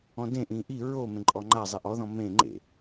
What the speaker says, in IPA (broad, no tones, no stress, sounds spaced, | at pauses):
ɔ̃ d ẽ ʔ ĩ ʔ i ɹ o m ẽ ǃʼ ɔ ŋ͡ǃ a zˤ i ʔ ɔ ð ɔ̃ m ẽ ŋ͡ǃ ḛ